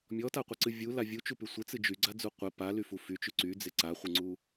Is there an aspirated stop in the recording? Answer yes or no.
no